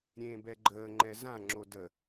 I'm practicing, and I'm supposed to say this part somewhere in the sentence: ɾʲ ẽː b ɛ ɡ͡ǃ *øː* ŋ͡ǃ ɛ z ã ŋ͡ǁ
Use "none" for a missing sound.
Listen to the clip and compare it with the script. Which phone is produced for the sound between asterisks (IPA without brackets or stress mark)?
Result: əː